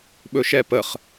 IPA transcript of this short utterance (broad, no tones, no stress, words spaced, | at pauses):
ɓɵʃɛpəχ